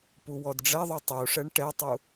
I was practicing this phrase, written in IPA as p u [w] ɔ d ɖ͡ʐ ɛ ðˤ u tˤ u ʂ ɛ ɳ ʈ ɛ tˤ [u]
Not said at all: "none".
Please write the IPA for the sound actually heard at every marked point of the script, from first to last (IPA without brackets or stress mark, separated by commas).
w, u